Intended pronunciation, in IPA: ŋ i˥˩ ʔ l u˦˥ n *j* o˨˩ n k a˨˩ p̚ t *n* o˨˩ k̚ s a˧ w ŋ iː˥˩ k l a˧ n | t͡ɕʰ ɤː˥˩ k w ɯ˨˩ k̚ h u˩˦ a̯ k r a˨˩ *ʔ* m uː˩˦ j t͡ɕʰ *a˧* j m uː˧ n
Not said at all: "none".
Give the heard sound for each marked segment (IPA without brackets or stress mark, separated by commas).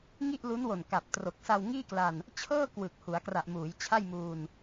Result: w, r, ʔ, a˥˩